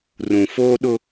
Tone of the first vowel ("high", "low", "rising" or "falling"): low